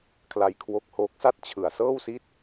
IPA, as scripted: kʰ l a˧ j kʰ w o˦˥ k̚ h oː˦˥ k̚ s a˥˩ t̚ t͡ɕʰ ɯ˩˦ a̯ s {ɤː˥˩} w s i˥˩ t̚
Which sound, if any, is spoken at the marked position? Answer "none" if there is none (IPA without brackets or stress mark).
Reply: ɤː˥˩